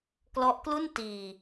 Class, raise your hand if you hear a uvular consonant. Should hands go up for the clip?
no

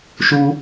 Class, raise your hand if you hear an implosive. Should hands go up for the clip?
no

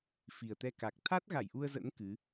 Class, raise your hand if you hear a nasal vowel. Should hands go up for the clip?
no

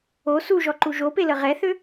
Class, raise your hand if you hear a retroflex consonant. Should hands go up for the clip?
no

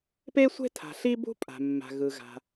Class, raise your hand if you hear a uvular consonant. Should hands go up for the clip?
no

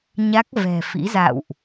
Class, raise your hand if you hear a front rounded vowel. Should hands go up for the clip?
no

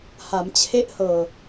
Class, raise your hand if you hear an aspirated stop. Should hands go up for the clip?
yes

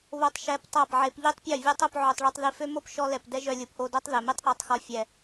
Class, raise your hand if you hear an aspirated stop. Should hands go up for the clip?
no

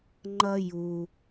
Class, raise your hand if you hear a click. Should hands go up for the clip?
yes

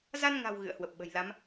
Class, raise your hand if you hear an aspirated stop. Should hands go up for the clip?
no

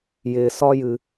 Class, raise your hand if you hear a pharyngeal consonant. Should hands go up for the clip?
no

